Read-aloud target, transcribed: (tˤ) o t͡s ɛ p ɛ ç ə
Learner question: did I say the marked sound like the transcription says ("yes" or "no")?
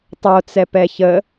yes